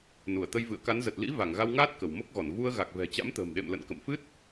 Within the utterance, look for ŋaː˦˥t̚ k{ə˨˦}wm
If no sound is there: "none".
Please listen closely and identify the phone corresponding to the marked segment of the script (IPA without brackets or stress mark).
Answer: ə˧˩